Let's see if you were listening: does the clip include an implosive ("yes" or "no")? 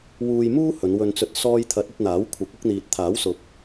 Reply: no